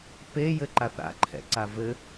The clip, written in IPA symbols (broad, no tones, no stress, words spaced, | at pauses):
pe jɘǃaθa̰ ǃʰɛ̰ǀavɘ